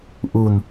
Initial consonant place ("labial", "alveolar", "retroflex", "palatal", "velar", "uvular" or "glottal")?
glottal